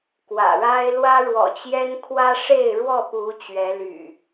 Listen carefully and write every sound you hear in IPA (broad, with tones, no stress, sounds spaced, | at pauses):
k w ä̰˨˩ ɻ a˦ ɪ̯ l w ä˦ ɻ w ɔ̰˨˩ t͡ɕ j ɛ˦ n kʰ w ä˦ ʂ e˥˨ ɪ̯ ɻ w ɔ˥˨ p u˨˦ t͡ɕ ɥ ɛ˨˦ l y̰˨˩